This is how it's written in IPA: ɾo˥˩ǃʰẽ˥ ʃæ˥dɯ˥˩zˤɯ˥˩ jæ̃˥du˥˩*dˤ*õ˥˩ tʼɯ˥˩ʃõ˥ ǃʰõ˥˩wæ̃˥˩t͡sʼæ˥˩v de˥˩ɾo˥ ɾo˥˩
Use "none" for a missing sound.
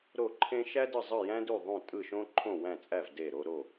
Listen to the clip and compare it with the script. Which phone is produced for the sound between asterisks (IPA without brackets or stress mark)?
ðˤ